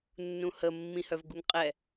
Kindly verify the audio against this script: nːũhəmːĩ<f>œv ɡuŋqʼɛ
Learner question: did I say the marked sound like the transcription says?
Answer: no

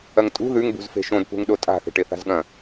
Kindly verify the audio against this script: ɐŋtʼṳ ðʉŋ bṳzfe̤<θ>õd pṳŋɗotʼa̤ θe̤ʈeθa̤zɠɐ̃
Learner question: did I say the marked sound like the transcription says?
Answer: no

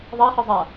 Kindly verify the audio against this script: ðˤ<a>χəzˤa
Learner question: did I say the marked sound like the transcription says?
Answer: yes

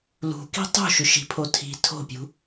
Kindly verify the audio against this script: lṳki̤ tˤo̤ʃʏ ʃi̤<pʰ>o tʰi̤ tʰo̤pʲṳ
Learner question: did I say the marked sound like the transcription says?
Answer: yes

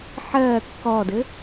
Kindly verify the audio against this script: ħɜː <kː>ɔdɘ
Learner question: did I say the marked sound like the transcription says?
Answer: yes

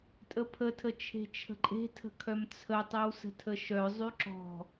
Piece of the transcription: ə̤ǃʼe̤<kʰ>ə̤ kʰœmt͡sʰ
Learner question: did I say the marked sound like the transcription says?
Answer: no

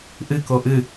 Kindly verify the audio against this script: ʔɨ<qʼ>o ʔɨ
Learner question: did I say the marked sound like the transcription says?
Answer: no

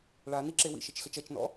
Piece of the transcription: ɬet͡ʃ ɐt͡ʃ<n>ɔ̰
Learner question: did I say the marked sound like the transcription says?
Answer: yes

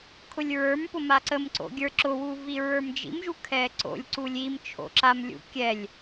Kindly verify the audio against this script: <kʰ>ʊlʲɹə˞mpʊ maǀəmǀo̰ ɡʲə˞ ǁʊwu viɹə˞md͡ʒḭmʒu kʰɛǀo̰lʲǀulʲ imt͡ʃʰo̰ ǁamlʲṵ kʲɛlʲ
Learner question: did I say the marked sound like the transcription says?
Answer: yes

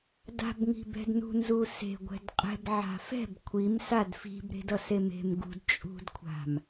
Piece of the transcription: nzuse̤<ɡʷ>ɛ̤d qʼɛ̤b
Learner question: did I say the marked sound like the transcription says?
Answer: yes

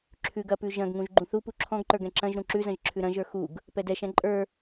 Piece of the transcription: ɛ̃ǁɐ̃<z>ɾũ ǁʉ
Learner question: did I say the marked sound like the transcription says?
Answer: no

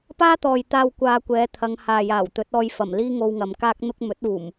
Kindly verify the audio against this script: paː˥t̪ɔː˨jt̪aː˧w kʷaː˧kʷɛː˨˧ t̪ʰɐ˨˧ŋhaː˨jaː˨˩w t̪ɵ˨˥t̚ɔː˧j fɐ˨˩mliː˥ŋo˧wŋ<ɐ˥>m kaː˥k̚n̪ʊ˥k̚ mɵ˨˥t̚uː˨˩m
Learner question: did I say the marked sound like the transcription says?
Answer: no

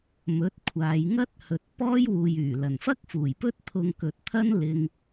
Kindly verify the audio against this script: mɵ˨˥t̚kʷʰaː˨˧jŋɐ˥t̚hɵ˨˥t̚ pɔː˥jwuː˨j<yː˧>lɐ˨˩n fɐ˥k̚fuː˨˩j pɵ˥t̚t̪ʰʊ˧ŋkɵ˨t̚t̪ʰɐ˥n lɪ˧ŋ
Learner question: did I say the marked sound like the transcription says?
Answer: no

